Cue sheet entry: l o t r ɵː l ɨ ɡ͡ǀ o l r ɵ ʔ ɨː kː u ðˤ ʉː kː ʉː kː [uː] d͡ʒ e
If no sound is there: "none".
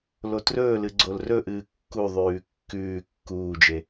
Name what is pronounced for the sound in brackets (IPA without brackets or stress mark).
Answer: uː